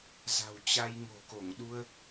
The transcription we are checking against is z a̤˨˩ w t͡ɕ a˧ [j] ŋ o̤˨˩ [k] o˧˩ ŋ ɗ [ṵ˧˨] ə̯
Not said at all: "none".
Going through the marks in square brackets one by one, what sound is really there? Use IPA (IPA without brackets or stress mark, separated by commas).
j, k, u˧